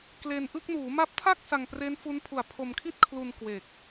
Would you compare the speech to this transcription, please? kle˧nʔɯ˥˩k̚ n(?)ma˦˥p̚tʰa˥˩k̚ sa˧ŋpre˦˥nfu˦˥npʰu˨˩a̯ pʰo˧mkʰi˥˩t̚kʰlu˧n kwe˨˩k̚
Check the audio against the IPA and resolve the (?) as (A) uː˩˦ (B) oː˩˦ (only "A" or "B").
A